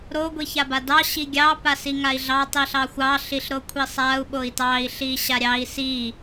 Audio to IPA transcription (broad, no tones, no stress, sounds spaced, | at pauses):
ɾ o ɡʷ i ç a b a d ɑ ɕ i ɡʲ ɑ p a s i ŋ a i̯ ɮ ɑ tˤ i ɬ ɑ xʷ ɑ ɬ i ɬ ɾ o kʷʰ i sˤ a u̯ ɓ o i̯ t ɑ i̯ ɬ i ɕ a ɾʲ ɑ i̯ s i